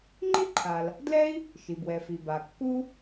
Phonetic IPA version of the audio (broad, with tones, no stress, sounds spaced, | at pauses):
ŋ͡ǃ i˥ ǃʰ a˩ l | d l ɛ˥ i̯ | ʃ i˩ b w ɛ˩ f i˩ b a˩ kː u˥